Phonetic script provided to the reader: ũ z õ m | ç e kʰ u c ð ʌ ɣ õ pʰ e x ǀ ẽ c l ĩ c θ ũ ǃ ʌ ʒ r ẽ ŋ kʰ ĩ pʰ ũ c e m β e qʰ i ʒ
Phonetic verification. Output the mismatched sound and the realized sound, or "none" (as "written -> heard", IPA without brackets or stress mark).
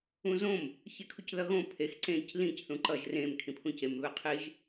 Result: ŋ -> m